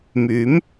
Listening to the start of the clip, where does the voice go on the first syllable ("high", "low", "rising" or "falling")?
rising